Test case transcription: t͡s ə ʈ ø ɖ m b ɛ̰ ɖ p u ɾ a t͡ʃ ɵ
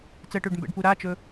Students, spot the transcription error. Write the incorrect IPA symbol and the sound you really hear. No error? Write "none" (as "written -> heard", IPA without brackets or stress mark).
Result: none